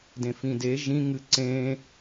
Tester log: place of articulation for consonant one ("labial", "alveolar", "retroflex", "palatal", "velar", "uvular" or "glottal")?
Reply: alveolar